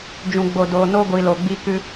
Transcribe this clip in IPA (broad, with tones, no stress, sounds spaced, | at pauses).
d͡ʒ ũ˨ ɡ͡b o˨ d oː˨ n o˦ ɡʷ i˨ l o˨ ɡ͡b i˧ k ɨ˧